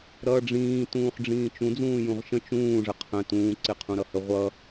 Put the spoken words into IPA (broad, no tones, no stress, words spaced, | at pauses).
ɾʌːɖ͡ʐĩː tũːχɖ͡ʐĩːt͡ʃũ d͡zũːjũʁʃə̃ t͡ʃũː ʐəqʰə̃ tũː ǀɪqʰũɾʌhə ʁʷʌ